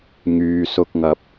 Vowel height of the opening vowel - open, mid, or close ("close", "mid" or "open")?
close